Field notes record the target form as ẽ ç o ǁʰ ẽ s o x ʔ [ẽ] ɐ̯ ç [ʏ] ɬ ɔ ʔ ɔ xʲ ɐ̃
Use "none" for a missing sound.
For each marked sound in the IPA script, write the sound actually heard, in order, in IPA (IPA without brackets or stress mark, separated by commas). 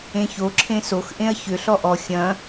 ẽ, ʏ